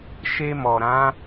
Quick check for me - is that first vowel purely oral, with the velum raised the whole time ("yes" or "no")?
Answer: yes